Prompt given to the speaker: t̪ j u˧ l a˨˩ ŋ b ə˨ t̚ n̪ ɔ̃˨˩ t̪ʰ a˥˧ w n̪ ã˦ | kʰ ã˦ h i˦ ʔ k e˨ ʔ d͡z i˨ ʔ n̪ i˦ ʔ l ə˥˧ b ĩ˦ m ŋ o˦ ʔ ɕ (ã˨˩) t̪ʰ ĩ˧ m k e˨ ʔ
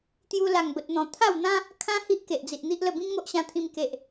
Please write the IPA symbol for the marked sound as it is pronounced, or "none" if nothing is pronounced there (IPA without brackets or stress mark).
ã˧